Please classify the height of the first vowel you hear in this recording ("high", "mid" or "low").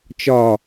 low